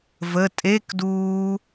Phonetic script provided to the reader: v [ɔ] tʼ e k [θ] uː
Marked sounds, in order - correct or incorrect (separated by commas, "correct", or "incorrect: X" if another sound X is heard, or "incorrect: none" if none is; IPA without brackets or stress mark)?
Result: incorrect: ə, incorrect: d